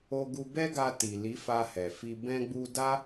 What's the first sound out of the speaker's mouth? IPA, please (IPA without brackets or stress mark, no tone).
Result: o